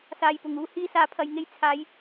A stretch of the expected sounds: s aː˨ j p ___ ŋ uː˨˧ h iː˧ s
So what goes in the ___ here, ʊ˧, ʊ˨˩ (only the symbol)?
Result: ʊ˨˩